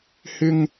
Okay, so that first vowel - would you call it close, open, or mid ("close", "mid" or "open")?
close